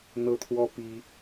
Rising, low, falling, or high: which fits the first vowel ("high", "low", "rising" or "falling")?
high